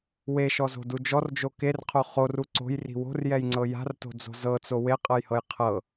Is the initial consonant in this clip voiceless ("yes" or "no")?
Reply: no